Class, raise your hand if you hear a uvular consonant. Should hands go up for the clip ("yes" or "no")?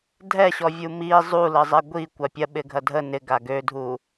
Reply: no